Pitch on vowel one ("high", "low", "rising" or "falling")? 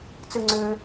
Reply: high